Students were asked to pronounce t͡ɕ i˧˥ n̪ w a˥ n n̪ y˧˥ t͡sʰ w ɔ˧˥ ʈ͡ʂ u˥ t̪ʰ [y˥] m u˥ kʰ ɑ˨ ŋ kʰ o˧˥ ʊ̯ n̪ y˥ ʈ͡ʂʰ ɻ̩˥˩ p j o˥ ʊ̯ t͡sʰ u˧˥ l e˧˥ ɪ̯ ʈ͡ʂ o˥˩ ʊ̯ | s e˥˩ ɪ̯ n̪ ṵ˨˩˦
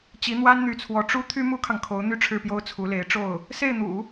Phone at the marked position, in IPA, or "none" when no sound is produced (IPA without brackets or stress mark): y˥